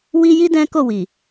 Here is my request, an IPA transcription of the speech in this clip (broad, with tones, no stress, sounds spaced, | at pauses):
w i˦ j i˦ d ɛ̃˦ k o˦˨ w i˨